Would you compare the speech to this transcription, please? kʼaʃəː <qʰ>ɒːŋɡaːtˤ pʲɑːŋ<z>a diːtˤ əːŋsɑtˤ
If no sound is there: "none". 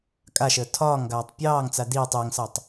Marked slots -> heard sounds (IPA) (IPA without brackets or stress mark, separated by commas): tʰ, t͡s